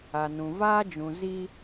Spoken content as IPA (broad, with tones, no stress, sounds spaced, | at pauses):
a˨ n ũ˨ v aː˦ d͡ʒ ũ˨ z i˦